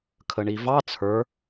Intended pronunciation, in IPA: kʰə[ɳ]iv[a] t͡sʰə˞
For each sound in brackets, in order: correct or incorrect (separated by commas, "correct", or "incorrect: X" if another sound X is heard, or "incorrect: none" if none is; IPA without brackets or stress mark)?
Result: correct, incorrect: ɑ